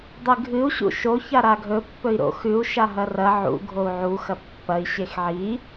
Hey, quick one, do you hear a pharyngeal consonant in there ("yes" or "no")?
yes